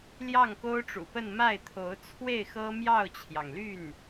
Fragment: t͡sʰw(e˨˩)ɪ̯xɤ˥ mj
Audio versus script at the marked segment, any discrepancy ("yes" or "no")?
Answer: yes